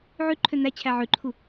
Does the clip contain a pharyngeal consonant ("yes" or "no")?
yes